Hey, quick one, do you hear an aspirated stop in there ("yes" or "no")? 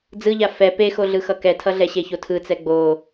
yes